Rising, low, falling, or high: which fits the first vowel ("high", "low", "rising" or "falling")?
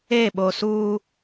falling